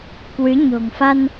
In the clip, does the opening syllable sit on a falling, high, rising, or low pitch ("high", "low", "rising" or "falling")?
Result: rising